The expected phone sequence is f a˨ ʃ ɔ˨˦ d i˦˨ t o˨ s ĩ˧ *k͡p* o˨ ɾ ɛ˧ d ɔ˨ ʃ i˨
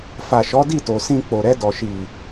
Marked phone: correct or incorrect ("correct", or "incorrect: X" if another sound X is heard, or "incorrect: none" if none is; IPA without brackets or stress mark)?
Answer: correct